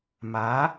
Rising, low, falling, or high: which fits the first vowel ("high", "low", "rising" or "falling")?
rising